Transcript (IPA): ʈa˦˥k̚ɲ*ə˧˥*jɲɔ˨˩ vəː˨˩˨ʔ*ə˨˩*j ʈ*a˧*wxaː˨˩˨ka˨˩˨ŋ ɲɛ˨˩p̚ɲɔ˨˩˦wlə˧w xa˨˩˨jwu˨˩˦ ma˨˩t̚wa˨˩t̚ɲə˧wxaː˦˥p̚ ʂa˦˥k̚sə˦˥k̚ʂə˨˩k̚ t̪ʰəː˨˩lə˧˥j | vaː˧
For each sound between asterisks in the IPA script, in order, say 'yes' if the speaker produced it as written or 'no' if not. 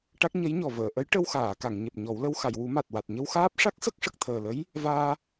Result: yes, no, no

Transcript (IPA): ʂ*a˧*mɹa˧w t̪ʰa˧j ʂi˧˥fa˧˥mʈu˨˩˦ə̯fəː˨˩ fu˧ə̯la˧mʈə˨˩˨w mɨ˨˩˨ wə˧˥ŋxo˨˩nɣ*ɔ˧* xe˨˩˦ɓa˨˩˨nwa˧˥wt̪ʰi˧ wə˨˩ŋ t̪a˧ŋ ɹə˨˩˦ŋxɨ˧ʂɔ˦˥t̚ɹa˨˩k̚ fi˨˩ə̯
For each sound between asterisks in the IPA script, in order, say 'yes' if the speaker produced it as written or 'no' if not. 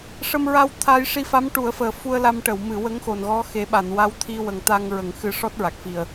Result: no, no

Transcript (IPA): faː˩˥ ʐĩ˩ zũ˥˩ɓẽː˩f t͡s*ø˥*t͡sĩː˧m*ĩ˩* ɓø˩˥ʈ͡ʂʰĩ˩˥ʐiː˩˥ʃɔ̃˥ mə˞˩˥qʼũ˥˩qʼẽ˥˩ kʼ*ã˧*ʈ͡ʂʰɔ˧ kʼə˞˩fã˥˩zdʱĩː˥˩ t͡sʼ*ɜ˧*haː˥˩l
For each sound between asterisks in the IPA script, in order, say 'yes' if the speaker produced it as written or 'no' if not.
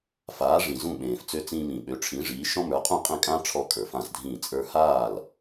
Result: no, yes, no, no

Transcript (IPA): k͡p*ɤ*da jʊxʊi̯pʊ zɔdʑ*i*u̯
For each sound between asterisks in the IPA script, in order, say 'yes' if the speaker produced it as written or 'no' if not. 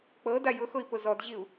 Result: yes, yes

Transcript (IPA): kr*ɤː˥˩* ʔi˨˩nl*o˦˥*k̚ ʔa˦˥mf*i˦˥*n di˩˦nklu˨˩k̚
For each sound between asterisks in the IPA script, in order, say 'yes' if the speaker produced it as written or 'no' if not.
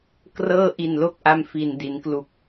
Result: yes, yes, no

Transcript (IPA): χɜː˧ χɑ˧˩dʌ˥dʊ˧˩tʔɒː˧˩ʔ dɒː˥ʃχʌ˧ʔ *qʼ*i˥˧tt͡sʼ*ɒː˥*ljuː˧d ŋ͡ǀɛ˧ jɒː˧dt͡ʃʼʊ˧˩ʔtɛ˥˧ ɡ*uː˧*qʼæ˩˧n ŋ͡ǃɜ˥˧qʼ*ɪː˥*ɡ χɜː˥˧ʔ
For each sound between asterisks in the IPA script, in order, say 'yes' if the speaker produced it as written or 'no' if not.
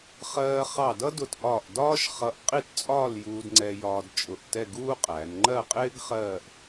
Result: yes, no, no, yes

